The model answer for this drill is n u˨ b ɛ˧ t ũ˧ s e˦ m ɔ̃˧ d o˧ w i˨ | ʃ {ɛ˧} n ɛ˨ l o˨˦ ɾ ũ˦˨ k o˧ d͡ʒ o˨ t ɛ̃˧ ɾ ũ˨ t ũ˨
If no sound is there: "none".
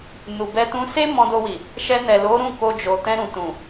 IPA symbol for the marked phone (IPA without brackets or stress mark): ɛ˧